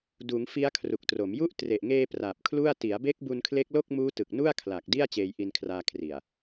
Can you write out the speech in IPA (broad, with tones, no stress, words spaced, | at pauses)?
duː˩˦ŋ fi˦˥a̯kʰru˨˩k̚tro˩˦mju˥˩ʔ tre˨˩ʔŋeː˧ pra˨˩p̚kʰlu˥˩a̯ ti˩˦a̯be˦˥k̚ bu˧nkʰle˦˥k̚lo˥˩k̚ muː˦˥tɯ˨˩k̚ nu˥˩a̯kʰla˨˩k̚ di˥˩a̯ t͡ɕeː˧jʔi˧nkʰraː˧ kʰri˨˩a̯